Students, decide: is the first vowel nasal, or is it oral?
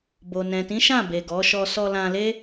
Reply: oral